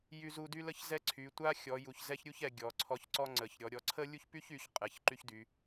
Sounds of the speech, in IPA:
j y˥ z u˥ d y˥ l ə˥ ç z ɛ˥ ǀʰ y˨˦ tʷ a˥ xʲ ɔ˨˦ j u˨˦ ç z ɛ˥ ç ɾʲ u˥ ç ɛ˨˦ ɡʲ ɔ˨˦ ǀʰ ɔ˥ ç ǀ ɔ˥ ŋ͡ǀ ə˨˦ ç ɾʲ ɔ˨˦ ɾʲ ɔ˨˦ ǀʰ ə˥ lʲ u˥ ç p y˥ ç y˨˦ ç qʼ ɛ˨˦ ç ǃ y˥ ç d y˨˦

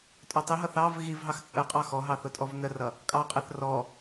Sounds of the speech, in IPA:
tʼ ʊ tˤ i ɦ ʌ θ ɑ v ɣ i v ɦ ɑ x t͡sʼ ə qʼ ɑ x ɔ ɦ ɑ θ ʊ tʼ ɔ v n ə r ʌ | kʼ ɑ qʼ ɛ θ r ɔ

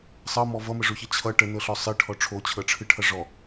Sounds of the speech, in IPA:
sˤ ʌ m ɔ v ʌ m ə ʐ o ç ʌ t͡ɕʰ ʌ ʈ ə n ɤ ɬ ɔ sˤ ɨ ʈʰ ɔ ʈ͡ʂʰ o t͡ɕʰ ɤ ʈ͡ʂʰ ɨ ʈʰ ʌ ʐ ɔ

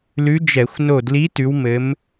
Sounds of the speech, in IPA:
l ʉ˧˥ d͡ʒ ɛ˧˩˧ xʷ n o˧˩ d l i˧˥ t ʉ˩˧ w m ɘ˩˧ m

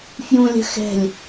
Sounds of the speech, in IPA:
f j ũ lʲ ə̤ x ɛ̤ lʲ

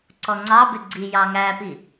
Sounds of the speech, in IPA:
ǀ ɔ ŋ͡ǀ ɑ b ɪ ɡ͡ǀ i j ɑ ŋ æ p i

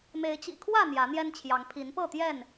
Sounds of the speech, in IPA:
m e˨˦ ɪ̯ t͡ɕ ḭ˨˩ kʰ w ä˥˨ n̪ j ä˨˦ n̪ j ɛ˦ n t͡ɕʰ j ɑ˨˦ ŋ pʰ i˨˦ n p ɤ˥˨ t̪ j ɛ˥˨ n

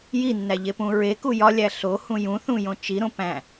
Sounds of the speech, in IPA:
j i nː æ ʎ e p ũ ɹ e k u j ɒ lʲ æ ɬ o h ũ j ũ θ ũ j õ t͡ʃ i ɾ õ p æ̃

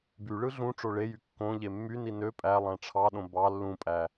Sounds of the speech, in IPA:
b y ɭ ɯ ɮ ũ ʈ͡ʂ o ɭ e j y kː õ ʎ e mː y n i n ø pʼ æ lˠ æ̃ ʈ͡ʂʰ ɑ ɗ õ b ɑ lː ũ pʼ æ

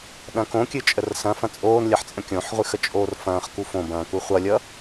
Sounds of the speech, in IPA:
ɗ ɐ̃ k õ kʲ ɨ t͡ʃʼ ə r s ɐ̃ f ɐ̃ t͡sʼ oː n lʲ ɐ ħ t͡sʼ ə̃ kʲ õ ħ ʁʷ ɨ x ə t͡ʃʼ oː r f ɐ̃ː χ k u f õ b ɐ̃ː k u χʷ ʌ lʲ ʌ

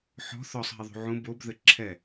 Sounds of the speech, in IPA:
ħ ɔ̤ θ ɔ sˤ ɦ e ðˤ ṳ ʕ ũ b o b ð ɘ ǁʰ ɛ

